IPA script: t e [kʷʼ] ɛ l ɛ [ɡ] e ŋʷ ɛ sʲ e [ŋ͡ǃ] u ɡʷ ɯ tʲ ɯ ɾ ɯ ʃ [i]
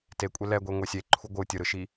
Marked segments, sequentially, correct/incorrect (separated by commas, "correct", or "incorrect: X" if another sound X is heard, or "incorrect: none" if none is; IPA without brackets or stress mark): correct, incorrect: ɡʷ, incorrect: ǃʰ, correct